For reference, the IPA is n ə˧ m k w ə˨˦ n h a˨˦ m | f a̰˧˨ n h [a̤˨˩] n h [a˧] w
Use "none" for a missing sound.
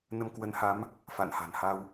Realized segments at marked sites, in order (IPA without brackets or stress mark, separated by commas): a̤˨˩, a˧